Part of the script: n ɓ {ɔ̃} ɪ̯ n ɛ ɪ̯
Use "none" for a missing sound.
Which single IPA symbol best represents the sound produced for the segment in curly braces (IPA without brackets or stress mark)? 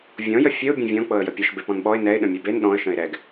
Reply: ɔ